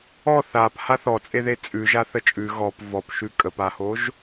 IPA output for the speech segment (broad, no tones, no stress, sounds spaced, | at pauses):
ɔ θ a p h a θ ɔ t͡sʼ e ð e t͡sʼ ʉ ʒ a θ ə t͡ʃʼ ʉ ɣ ɔ p v ɔ p ʃ ʉ kʼ ə p a h o ʒ